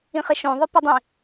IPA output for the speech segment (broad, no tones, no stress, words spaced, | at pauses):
ĩχɪʃõ ðˤɪpɪdˤĩ